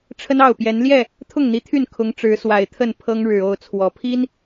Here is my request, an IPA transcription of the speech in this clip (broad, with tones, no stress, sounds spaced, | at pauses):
ʈ͡ʂʰ ə˦ n ɑ˥˨ ʊ̯ p j ɛ˨˦ n l j ɛ˥˨ | t̪ʰ ʊ˥˨ ŋ n̪ i˨˦ t̪ʰ y˥˨ n kʰ ʊ˨˦ ŋ ʈ͡ʂ ɻ̩˨˦ s w a˨˩ ɪ̯ t̪ʰ ə˥˨ n pʰ ɤ˦ ŋ ɻ ɻ̩˨˩ o˥˨ ʊ̯ t͡sʰ w ɔ˨˩ pʰ i˦ n